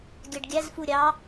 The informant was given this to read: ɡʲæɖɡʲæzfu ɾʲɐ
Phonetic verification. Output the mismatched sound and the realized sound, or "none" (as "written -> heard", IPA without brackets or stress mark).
ɐ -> ɑ